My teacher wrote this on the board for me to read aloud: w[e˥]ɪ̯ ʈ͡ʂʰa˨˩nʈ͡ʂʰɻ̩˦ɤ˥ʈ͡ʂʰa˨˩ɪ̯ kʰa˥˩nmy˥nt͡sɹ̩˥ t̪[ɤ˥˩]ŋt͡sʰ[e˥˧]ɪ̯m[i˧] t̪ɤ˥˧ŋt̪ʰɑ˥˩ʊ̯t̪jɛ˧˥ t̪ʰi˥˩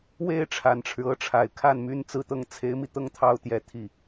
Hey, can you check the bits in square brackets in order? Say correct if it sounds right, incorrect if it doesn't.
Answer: incorrect, incorrect, incorrect, correct

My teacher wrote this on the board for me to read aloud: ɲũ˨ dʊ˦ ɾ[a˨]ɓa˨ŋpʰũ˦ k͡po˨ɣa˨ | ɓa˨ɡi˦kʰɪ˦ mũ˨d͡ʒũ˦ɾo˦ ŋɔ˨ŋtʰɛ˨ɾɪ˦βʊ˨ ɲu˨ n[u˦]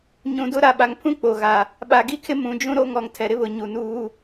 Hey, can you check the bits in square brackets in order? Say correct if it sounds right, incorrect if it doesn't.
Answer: correct, incorrect

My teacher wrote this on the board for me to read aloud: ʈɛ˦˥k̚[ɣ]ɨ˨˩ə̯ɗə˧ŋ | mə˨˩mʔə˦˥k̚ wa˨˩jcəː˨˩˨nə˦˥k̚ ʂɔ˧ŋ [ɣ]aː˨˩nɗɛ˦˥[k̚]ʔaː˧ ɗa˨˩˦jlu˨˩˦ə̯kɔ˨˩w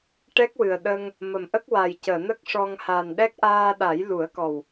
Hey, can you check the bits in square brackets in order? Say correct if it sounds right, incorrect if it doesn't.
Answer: incorrect, incorrect, correct

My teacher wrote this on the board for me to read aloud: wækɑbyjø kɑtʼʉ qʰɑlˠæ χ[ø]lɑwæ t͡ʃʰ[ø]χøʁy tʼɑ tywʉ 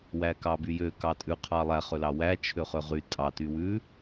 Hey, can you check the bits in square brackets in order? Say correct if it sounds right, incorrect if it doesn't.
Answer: correct, correct

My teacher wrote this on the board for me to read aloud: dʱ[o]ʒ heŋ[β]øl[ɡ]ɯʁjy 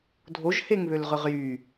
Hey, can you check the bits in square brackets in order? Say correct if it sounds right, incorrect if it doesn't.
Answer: correct, correct, incorrect

